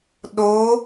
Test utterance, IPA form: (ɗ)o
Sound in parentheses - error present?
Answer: no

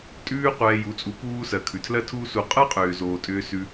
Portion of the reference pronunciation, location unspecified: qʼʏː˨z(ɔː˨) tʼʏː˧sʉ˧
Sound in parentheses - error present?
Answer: yes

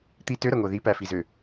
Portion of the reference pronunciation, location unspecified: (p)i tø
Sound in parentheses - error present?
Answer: yes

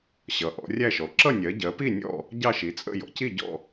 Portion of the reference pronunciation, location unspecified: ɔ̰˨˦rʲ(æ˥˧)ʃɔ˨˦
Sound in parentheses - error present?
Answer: no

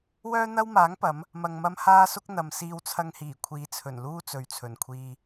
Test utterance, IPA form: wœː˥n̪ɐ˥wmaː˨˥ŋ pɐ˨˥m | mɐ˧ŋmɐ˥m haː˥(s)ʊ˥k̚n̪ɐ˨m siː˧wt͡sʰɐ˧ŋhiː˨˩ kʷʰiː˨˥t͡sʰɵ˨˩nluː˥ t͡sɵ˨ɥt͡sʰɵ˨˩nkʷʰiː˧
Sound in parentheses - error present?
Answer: no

